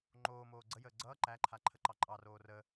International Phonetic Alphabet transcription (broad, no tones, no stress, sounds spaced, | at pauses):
ŋ͡ǃ oː m oː ɡ͡ǀ ə j əː ɡ͡ǀ ʌː ǃ æ ǃʰ a ǃʰ ə ǃ ɑ ǃʼ ɑ r oː r ə